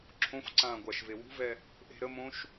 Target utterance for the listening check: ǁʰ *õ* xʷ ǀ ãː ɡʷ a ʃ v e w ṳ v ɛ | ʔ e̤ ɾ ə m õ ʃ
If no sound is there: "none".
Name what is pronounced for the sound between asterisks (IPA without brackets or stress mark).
õ